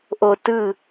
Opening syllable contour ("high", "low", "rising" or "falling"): low